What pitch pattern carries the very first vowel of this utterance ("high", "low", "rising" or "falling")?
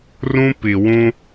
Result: high